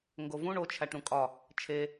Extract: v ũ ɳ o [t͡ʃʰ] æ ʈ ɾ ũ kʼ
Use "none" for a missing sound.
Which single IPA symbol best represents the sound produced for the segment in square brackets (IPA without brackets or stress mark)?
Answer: t͡ʃʰ